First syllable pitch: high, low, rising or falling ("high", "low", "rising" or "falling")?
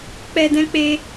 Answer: high